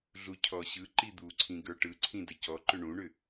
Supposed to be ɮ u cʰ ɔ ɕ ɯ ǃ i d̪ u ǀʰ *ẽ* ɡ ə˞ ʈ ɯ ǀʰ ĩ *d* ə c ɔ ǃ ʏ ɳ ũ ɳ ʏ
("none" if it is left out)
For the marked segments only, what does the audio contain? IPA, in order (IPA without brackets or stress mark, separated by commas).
ĩ, d